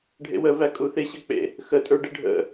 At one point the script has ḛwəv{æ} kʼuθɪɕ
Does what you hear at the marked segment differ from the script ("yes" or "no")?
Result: no